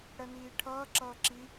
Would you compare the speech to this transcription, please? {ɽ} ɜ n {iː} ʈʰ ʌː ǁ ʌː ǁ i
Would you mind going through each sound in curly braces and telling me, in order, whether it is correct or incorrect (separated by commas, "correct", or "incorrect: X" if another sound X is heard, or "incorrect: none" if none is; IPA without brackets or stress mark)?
correct, correct